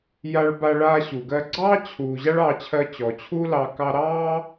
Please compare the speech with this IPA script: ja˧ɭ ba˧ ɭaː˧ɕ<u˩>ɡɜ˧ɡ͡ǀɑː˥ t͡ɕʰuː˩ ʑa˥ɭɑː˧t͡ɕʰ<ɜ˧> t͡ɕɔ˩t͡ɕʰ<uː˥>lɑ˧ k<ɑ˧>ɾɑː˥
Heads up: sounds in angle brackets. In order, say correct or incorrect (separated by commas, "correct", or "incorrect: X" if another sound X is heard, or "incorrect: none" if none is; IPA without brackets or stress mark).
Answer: correct, correct, correct, correct